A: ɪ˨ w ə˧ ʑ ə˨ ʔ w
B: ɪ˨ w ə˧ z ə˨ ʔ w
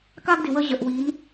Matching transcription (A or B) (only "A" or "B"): A